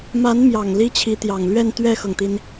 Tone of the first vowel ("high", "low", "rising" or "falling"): rising